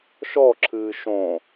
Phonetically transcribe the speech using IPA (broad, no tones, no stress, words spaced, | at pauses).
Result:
ʃɔǁʰɨː ʃõ